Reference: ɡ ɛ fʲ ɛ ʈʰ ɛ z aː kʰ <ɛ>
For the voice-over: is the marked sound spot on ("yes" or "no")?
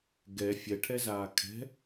no